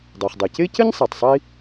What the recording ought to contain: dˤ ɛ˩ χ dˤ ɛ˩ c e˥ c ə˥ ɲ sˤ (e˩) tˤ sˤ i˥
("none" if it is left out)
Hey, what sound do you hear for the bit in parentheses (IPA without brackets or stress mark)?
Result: e˩